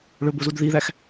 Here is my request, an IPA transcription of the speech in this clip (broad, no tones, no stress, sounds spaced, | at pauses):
ɭ ɵ b o z u d ð i ð æ x